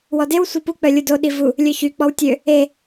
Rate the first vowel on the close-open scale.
mid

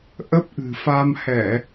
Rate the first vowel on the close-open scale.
mid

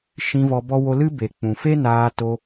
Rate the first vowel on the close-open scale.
close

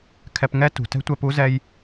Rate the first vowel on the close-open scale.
mid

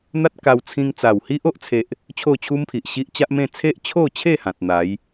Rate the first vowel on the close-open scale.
open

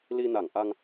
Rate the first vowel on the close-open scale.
close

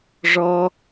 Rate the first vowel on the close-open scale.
mid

